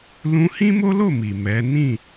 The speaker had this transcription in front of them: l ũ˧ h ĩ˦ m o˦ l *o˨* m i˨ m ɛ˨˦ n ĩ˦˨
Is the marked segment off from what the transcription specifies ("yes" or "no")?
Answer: yes